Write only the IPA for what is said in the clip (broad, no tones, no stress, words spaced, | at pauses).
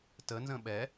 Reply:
tənzə̃ ɓɛ